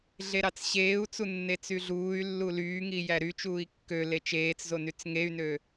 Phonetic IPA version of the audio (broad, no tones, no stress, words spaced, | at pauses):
ɮeɾɑt͡sɕeːu̯t͡su nːet͡syɮuːy̯lːu lyːŋi jæɾyt͡ʃuːi̯ kːøle t͡ʃeːt͡szo nyt͡sŋey̯nø